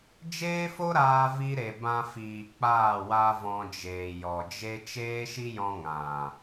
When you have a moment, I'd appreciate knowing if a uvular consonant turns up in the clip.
no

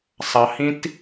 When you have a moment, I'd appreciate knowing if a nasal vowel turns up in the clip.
yes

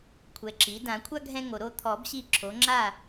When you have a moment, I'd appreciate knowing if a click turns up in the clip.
yes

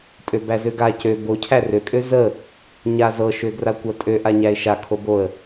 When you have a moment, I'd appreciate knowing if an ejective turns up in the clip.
yes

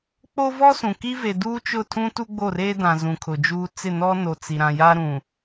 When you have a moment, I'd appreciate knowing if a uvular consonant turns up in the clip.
no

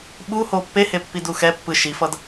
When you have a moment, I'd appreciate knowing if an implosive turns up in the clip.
yes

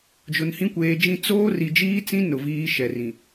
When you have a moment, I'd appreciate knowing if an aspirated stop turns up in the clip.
no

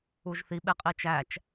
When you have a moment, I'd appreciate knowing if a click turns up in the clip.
no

